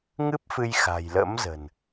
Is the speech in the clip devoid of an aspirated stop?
yes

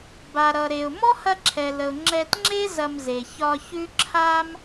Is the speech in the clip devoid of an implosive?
yes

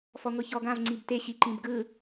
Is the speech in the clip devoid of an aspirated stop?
yes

